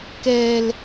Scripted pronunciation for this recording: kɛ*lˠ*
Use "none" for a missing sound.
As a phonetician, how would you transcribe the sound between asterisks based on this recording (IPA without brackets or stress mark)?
l